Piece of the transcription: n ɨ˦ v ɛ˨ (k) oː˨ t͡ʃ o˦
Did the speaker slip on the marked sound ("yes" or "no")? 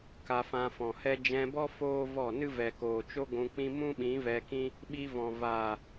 no